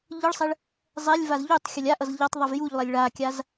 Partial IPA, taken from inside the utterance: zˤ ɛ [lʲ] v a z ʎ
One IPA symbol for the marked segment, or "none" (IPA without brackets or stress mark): lʲ